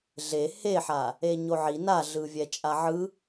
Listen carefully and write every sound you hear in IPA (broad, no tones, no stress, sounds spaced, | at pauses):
ɮ e h e ħ a | e ɲ o ʕ i n a ɮ ɯ vʲ ɛ t͡ʃʼ a ʕ ɯ